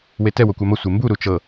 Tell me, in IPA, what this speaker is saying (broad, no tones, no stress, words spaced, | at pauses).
wetɛ wokʷamɤ sʷembu ɾut͡ʃɤ